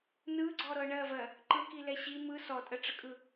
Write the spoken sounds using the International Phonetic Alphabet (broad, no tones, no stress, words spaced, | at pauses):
nɯɡ͡ǀɔɾɤ ɳɜvɜ | ǃɯkilɛ ɕi mɯ sɔtʼəʈ͡ʂəkʼɯ